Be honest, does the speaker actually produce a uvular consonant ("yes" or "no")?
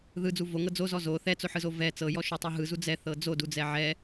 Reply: no